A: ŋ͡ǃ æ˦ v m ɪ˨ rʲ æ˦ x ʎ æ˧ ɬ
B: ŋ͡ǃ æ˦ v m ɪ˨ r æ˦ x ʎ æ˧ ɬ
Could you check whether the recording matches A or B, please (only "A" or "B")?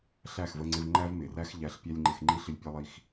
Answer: B